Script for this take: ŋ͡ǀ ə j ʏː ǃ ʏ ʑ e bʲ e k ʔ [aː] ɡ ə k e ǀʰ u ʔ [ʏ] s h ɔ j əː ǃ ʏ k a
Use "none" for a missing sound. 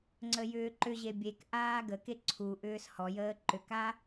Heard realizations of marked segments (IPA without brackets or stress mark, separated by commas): aː, ʏː